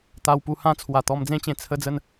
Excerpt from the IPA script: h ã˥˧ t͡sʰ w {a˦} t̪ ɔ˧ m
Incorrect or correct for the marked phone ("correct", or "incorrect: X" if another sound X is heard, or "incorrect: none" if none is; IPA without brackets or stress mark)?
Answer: incorrect: a˨˩